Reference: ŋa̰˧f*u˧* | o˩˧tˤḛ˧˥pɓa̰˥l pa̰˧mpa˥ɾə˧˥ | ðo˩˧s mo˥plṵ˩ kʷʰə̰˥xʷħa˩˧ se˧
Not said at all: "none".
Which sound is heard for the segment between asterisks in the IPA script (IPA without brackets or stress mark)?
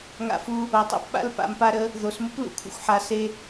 u˧